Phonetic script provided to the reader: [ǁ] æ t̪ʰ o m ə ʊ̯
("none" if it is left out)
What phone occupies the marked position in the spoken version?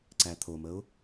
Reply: ǀ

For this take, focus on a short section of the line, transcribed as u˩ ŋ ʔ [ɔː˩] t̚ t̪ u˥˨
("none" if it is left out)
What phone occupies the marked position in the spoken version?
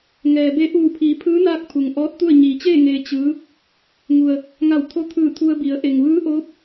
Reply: ɔː˧˥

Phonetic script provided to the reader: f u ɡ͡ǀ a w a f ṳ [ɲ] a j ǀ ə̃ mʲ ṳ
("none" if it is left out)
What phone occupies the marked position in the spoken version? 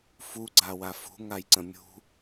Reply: ŋ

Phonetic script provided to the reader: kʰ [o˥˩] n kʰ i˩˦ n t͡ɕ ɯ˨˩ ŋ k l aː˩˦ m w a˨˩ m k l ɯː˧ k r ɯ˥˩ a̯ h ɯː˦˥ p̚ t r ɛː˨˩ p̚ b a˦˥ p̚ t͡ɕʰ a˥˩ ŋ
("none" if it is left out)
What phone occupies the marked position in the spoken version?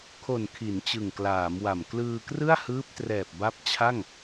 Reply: o˨˩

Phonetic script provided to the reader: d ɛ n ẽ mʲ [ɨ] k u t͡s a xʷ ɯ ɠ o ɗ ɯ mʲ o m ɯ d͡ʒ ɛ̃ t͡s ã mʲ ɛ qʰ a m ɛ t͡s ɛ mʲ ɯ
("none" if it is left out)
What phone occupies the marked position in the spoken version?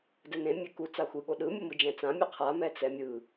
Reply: e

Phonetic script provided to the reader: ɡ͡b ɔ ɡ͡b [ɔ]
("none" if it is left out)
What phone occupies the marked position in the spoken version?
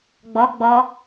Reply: ɔ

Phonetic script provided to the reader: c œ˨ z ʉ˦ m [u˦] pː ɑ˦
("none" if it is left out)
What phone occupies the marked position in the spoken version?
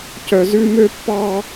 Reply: ø˦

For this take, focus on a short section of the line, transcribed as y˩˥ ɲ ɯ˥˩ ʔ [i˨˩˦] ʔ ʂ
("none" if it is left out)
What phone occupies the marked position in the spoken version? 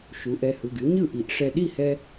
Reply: i˨˩˦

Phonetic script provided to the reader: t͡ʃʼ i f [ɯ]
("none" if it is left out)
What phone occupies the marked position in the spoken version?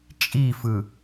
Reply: ɯ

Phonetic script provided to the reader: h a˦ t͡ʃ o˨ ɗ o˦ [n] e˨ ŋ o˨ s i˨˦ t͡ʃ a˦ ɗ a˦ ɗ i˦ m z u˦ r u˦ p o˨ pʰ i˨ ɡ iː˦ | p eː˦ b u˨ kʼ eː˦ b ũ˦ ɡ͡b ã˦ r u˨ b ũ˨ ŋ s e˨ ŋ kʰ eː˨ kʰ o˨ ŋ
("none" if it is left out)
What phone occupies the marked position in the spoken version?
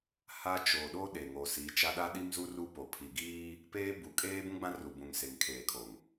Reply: ɗ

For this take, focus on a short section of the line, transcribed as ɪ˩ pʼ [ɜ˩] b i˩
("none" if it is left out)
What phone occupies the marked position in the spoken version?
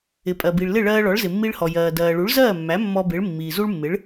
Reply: ɜ˩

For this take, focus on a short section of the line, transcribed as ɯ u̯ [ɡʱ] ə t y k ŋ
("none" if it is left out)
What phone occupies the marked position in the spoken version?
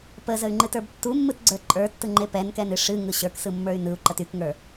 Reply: ǃ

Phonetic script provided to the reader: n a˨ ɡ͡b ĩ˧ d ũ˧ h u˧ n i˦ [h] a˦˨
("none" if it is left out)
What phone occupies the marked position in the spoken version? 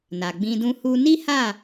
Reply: h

